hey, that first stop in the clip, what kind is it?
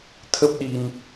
aspirated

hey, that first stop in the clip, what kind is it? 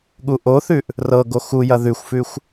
implosive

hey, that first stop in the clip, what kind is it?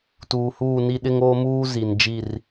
plain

